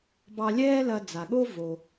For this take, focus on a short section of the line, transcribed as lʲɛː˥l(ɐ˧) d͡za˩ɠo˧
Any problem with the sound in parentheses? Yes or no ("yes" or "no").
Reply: no